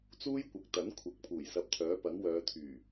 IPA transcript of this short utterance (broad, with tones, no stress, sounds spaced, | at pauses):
t͡s uː˥ j kʷ ɐ˨˥ k̚ t̪ ɐ˨˥ n kʷʰ ɐ˨˥ k̚ pʰ uː˨˩ j s ɐ˧ p̚ t̪ʰ œː˨˥ p ɐ˨˥ ŋ w œː˨˧ t̪ʰ yː˨˩